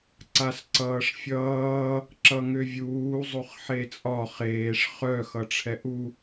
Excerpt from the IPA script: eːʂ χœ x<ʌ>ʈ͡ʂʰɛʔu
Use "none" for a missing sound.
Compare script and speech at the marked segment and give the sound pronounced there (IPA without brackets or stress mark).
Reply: ʌ